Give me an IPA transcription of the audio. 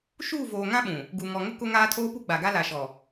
ʃ uː˦˨ v oː˨ ŋ ã˦ ɓ ũ˨ | ɡ u˨ ŋ ɔ˨ ŋ ʊ˦ k ʊ˦ ŋ aː˦ tʰ oː˦ p u˦ ɡ͡b a˨ ɡ a˦ l a˨ ʃ ɔ˨

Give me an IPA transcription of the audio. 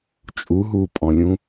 t͡ʃʼ u ɦ uː pʼ ɔ̃ lʲ ũ

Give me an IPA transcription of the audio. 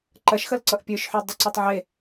ǃ ɐ ʃ x ɐ l ǀ ʌ ʔ pʲ ə˞ ʃ ħ ʉ dˤ ʌ ǀ ʌ tˤ ʕ e

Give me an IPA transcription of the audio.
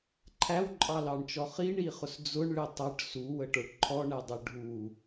ǃʰ æ w ǃʼ ɑ l ɑ ɳ t͡ʃ ɔ χ i ɳ i χ ʊ s d͡z ʊ ɳ ɭ ɪ tˤ ʌ ʈ s u w ə ʈ ə˞ ʈ ǃʰ ɔ ɳ ɛ dˤ ə ɖʱ u

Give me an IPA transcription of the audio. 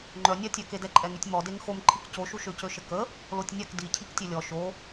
ŋ͡ǃ œ nʲ a tʲ œ k e d ɛ ǃʼ ɛ ŋ y tʲ m ɔ d e ŋ x o m ǃʰ i k c o ʃ u ʃ ø c ø ʃ ə k ə | l o tʲ nʲ a k d i cʰ i k tʲ ø lʲ ɔ ʃ o

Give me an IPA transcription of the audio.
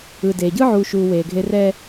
ɯː˨ d eː˨ ɟ ɯ˦ ʕ uː˨ ʃ uː˨ w eː˨ ɡʱ e˦ r ɛ˦

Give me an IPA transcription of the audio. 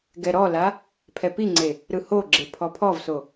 ɡ ɛ ɾ ɔ l a | pʰ ɛ p i ŋ͡ǀ e | ɾ ɯ h o ɡ͡ǁ e pʰ ɔ pʰ ɔ v s o

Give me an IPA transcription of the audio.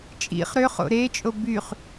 t͡ʃʼ ḭ χ ɾ ø χ o̰ ɾ e t͡ʃʼ o b y χ

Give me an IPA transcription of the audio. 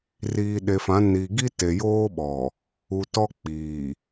r iː˨ ɗ e˨ f ã˨˦ n i˨ ɡ i˦ t e˨ j oː˦ ɓ ɔ˨ | u˨ t ɔ˦ k͡p iː˨

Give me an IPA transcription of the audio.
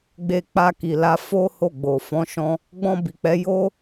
ɡ͡b e˧ k͡p a˧ k i˨ l a˧ f o˦ h o˦˨ ɡ͡b o˨ f ɔ̃˨˦ ʃ ɔ̃˧ | ɡ͡b ɔ̃˧ b i˨ k͡p ɛ˨˦ j o˦

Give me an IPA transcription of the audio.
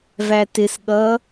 v æ t ɪ s ɠ ʌ

